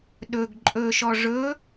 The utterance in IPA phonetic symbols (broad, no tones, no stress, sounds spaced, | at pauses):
ɗ ɵ ɡ ǃʼ ɵ ʃ ɔ ʐ ɵ